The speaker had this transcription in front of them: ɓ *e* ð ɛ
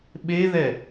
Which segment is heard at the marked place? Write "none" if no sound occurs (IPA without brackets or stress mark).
e